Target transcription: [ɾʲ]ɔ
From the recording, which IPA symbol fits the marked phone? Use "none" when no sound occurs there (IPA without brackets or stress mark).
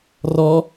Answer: r